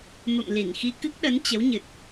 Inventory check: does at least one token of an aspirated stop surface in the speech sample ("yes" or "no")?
no